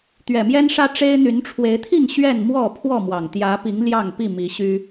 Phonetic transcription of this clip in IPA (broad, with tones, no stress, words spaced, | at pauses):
t̪ɥɛ˨˩mjɛ˦nʂä˦ ʈ͡ʂe˦ɪ̯ n̪y˨˦nʈ͡ʂʰwe˨˦ɪ̯t̪ʰi˥˨ŋ ɕɥɛ˥˨n mwɔ˥˨ pʰwɔ˥˨mwɑ˨˩ŋ t̪jä˨˦pi˨˦ŋ ljɑ˥˨ŋpi˥˨mi˨˦ɕy˦